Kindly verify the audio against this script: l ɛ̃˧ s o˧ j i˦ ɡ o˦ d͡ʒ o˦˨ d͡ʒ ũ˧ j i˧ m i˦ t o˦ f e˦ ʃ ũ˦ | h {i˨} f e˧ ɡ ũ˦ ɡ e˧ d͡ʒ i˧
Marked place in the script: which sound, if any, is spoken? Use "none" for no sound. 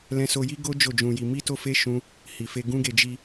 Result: i˨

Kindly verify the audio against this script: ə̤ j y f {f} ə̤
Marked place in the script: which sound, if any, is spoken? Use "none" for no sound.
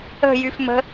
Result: m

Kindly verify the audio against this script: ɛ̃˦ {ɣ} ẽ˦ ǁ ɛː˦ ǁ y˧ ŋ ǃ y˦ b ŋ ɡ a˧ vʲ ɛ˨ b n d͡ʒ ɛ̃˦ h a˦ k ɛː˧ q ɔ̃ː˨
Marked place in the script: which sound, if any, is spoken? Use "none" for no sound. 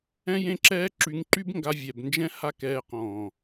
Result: j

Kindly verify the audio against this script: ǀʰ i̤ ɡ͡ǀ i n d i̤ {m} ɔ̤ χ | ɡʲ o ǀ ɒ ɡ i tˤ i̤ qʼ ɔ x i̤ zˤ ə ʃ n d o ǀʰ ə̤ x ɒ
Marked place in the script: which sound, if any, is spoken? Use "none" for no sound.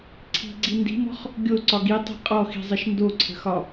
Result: m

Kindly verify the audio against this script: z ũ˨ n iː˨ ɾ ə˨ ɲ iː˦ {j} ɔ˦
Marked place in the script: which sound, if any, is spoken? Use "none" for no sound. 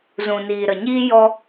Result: j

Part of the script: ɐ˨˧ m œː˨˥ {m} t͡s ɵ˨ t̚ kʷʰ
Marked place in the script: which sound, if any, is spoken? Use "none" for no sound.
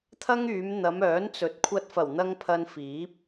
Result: n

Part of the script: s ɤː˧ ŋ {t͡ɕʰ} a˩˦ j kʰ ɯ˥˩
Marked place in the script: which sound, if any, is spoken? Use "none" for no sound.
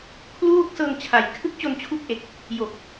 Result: t͡ɕʰ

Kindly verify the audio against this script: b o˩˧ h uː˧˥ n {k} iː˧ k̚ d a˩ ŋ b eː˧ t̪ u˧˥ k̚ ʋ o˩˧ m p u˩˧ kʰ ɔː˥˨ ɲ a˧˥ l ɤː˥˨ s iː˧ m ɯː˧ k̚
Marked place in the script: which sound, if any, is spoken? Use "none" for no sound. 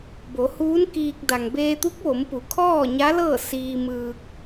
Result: k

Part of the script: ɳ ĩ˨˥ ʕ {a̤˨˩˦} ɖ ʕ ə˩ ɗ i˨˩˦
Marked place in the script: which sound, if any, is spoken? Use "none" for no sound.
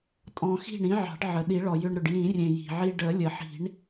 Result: ɑ̤˨˩˦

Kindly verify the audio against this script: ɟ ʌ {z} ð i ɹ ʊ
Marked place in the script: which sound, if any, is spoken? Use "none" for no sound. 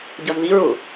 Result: z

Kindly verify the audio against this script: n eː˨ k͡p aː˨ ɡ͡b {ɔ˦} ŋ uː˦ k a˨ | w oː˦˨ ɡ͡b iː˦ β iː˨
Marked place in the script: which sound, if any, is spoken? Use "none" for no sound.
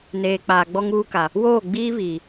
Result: ɔ˦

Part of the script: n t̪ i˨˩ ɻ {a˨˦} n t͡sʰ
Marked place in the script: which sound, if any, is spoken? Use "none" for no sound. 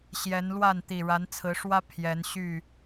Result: a˨˦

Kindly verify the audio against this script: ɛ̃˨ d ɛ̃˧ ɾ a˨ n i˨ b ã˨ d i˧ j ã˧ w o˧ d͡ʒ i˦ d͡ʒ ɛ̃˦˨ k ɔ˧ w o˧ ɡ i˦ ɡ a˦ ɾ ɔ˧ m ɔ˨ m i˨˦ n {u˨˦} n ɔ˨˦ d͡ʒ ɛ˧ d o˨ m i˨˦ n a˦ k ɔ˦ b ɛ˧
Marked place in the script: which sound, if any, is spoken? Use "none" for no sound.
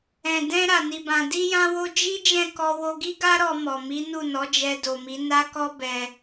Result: u˦˨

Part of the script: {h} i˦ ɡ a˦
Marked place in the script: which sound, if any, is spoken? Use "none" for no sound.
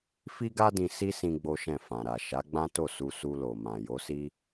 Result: f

